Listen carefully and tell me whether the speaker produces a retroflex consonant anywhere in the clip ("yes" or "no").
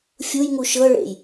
yes